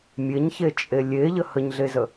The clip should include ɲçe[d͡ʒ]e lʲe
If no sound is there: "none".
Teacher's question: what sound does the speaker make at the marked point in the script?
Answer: t͡ʃʼ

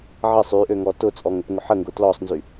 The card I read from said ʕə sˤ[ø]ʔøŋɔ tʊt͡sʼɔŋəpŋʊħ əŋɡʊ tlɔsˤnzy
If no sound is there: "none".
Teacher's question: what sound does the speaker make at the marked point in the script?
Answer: y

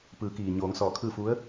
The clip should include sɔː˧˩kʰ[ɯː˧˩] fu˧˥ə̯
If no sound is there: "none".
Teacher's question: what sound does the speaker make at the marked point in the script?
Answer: ɯː˥˨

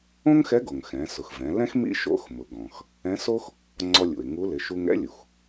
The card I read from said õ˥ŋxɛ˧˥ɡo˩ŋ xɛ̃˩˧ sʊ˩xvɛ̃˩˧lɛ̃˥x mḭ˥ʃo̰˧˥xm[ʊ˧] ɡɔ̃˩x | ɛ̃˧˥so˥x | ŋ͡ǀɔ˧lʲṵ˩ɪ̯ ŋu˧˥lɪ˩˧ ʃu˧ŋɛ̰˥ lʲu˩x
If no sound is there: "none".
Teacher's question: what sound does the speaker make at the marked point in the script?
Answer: ʊ˩˧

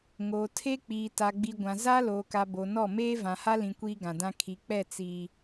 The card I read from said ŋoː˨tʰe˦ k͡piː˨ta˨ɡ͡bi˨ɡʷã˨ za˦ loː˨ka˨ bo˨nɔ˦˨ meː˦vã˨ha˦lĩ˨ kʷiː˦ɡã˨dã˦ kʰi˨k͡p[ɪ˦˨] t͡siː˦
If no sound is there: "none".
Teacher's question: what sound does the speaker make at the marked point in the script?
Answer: ɛ˦˨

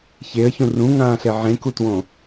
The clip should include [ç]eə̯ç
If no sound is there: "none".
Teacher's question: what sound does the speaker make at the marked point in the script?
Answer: ç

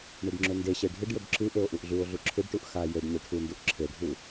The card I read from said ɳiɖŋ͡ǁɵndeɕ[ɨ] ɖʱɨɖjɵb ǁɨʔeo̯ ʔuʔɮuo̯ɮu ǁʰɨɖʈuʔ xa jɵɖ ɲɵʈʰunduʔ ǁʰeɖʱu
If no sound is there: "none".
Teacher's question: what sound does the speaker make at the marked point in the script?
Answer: e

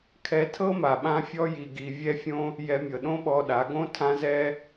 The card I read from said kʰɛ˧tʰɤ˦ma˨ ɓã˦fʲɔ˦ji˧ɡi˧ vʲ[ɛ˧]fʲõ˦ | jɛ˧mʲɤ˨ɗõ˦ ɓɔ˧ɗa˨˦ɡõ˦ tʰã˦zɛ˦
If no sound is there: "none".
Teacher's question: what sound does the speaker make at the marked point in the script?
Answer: ɛ˦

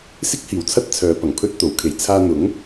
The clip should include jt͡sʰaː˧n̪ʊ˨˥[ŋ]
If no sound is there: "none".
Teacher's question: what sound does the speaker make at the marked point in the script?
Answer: ŋ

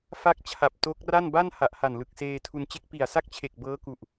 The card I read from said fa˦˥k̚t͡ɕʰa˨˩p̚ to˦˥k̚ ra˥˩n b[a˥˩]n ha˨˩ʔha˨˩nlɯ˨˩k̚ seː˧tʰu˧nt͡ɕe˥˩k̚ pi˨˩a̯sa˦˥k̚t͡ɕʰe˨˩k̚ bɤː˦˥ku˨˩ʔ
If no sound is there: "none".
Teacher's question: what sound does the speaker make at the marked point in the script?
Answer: a˥˩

